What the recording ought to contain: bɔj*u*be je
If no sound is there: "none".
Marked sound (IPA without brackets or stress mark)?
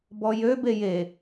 ø